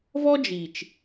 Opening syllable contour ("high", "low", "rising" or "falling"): high